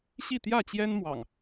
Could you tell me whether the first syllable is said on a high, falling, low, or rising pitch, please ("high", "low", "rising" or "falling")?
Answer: falling